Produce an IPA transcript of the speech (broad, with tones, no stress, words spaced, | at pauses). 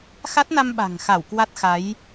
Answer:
xa˦˥t̚na˧mɓa̤˨˩ŋxa˧˩w kwa˦˥t̚xa˨˦j